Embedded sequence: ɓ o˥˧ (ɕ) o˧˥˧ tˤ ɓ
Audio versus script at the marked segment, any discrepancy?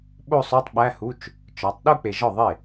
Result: yes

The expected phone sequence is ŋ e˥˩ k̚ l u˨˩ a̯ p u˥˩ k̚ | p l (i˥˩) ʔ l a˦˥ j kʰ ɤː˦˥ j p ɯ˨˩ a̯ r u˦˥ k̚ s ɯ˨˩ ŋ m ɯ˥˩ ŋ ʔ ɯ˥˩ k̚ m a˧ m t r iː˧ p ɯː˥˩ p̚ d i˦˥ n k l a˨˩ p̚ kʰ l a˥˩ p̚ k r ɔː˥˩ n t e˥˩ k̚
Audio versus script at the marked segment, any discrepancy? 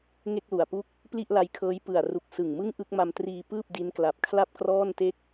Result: no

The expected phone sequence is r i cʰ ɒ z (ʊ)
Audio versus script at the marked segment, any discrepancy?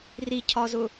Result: no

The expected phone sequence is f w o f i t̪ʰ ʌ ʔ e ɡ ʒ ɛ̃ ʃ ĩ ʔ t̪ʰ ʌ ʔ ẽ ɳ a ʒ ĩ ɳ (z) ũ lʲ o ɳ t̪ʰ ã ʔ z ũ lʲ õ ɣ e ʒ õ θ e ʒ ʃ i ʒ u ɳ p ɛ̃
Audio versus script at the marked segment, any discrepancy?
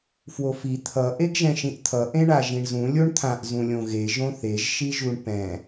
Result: no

